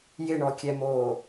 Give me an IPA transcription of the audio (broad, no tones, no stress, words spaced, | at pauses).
jɪɳɔkʲɛmoː